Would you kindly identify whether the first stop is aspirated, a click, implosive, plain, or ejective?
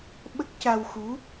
implosive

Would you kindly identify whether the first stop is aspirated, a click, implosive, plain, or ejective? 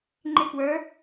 click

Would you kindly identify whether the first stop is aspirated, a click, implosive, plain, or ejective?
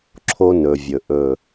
click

